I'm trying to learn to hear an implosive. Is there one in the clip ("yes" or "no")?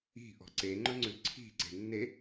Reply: no